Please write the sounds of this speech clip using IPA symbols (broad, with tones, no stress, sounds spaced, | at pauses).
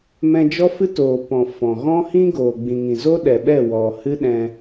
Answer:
m ɛ̃˧ d͡ʒ ɔ˦ f ɨ˦ t oː˨ p ɔ̃˨ f ɔ̃˨ ɣ ɔ̃˦ h ĩ˦ ɡ oː˨ ɡ͡b ĩ˨ ŋ ĩ˨ z o˦ ɗ ɛ˨ ɓ ɛ˦˨ w ɔ˨ h ɨ˦ ɗ ɛ̃˧